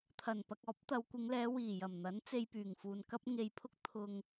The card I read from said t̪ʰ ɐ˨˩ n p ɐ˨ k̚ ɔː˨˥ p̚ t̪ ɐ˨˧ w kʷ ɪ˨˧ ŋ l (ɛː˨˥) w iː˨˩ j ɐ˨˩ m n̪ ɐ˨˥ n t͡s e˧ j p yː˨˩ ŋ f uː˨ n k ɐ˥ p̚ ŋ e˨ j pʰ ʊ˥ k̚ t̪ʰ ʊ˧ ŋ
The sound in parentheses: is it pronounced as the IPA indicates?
no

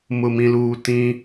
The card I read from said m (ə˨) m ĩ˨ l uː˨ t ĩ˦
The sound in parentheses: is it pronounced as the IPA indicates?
no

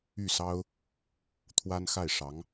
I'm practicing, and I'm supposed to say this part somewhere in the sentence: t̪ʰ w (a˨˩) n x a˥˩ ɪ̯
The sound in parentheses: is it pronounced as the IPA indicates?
no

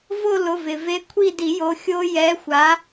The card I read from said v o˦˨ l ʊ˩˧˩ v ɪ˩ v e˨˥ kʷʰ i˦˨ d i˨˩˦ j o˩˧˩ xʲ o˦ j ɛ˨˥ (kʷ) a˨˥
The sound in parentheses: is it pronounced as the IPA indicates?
no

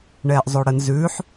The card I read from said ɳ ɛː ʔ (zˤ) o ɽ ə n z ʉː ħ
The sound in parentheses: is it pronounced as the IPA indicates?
yes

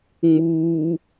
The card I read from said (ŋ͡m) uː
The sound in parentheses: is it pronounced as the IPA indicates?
yes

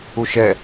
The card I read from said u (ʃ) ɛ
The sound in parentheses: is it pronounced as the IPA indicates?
yes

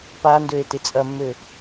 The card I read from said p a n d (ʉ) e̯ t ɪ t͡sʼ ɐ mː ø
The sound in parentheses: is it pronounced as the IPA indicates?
no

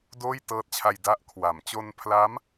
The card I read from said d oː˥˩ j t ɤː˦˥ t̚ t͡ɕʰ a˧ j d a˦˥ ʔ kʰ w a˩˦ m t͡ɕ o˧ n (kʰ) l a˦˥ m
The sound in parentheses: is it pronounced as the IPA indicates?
no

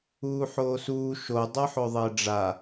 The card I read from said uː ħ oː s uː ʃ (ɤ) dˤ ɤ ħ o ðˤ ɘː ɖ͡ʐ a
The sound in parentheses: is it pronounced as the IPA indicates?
no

